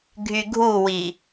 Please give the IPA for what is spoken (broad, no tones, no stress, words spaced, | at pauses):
ɡʱyɡʱuwi